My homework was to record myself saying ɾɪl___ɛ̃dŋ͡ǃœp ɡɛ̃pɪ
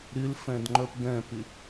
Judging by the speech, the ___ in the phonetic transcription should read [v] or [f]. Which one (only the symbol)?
f